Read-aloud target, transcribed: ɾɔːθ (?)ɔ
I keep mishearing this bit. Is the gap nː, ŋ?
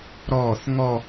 ŋ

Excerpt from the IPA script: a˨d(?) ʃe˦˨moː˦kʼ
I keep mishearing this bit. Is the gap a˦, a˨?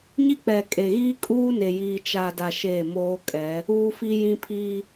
a˨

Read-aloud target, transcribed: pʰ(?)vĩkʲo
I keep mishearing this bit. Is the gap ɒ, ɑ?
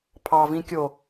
ɑ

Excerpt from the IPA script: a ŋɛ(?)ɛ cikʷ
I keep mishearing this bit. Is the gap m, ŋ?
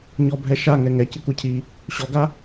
ŋ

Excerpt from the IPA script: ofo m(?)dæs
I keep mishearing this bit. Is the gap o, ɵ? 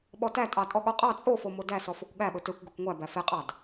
o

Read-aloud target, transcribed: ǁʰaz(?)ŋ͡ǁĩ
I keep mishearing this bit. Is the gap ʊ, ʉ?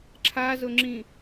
ʊ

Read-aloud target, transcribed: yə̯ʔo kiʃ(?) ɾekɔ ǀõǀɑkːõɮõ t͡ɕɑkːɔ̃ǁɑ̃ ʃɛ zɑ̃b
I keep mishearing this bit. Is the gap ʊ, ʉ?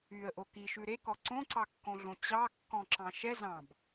ʉ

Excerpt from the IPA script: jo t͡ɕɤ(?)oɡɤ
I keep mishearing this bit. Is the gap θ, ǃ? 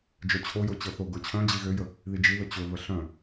θ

